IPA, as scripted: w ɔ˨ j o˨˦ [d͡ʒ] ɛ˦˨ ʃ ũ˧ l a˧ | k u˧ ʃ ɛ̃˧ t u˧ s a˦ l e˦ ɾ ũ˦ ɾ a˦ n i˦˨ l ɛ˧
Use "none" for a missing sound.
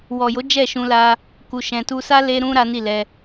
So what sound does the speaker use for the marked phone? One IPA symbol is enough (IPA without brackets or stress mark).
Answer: d͡ʒ